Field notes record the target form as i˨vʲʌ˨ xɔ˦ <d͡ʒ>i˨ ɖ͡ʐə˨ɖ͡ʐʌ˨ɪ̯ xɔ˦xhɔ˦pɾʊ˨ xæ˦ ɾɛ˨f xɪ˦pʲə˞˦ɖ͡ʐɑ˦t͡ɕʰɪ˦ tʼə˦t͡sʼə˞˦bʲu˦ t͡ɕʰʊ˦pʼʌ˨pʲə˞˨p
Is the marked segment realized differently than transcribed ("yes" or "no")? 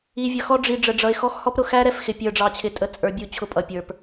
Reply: yes